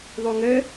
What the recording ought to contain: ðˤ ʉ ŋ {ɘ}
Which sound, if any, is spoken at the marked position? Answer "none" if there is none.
ɘ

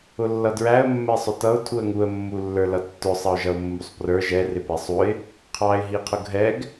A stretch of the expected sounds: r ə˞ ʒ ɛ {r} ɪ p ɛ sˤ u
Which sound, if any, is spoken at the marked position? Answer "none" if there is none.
r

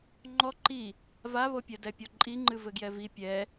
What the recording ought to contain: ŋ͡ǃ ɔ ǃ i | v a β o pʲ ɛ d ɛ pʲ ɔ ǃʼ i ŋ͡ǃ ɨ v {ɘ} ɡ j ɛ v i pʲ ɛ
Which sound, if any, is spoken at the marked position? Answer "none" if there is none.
ɘ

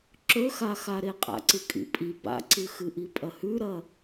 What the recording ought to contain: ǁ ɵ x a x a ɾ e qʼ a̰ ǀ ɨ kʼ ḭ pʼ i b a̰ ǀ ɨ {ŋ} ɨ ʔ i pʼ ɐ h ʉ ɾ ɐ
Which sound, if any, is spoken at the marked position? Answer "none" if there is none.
x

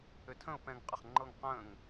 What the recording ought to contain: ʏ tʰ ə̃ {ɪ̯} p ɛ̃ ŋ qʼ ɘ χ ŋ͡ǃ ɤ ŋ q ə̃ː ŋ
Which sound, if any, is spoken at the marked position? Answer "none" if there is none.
ʊ̯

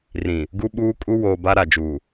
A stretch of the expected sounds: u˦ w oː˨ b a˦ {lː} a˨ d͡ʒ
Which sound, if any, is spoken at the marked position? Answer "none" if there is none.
ɾ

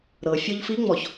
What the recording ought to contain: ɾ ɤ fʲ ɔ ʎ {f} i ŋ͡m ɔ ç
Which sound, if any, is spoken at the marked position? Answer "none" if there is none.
f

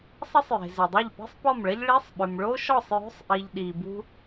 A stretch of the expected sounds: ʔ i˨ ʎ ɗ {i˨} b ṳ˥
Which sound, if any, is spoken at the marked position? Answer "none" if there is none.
i˨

